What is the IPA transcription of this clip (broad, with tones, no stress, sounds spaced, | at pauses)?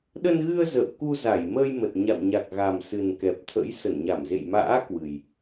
ɗ ə˧ n ɣ ɨ˧ ə̯ z ə̰ː˧˨ w k u˧ z a˧˩ j m əː˧ j m ə˨˩ t̚ ɲ a̰˧˨ w ɲ a˨˩ k̚ ɣ a˨˩ m s ɨ˨˩ n k ɛ˨˩ p̚ t̪ʰ ə̰˧˥ j s ə˧˩ n ɲ a˧˩ m z ḛ˧˨ j m a̰ː˧˥ k w ɨ˨˩ j